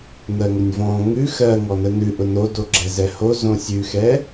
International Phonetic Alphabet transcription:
n̪ ɜ ŋ ʊ nʲ v ɔ̃ ŋ ʉ x ɜ ŋ ɔ n ə n ʉ ʔ ʊ n o d o ɡ͡ǁ ɛ z ɛ h o z õ sʲ ʉ x ɛ

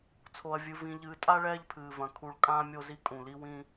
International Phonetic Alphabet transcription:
t͡sʰ o˨ ɐ̯ vʲ ɨ˨ v ĩ˨ ʎ ɨː˨ tʼ a˦ ɭ ɛː˦ ʎ pʰ ɨː˨ v ɐ̃˨ kʰ u˨ ɭ kʼ ãː˦ mʲ o˦ z i˦ kʼ ũ˨ l i˦ w ĩ˦

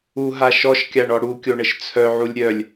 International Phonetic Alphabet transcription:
u ɦ a ʃ ɔ ʃ kʲ a ɳ ɔ ɽ u kʲ o ɳ ə ʃ t͡sʰ œ ʕ u lʲ ɾʲ œ lʲ

